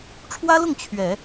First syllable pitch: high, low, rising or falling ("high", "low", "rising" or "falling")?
high